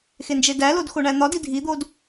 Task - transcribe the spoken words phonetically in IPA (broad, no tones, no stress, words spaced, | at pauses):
xend͡ʒedælod xoɳæn̪ɒdi dʱid̪od